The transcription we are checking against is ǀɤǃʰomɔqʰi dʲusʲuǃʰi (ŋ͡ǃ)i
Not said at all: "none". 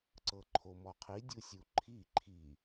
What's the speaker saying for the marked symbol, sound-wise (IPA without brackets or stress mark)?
ǃʰ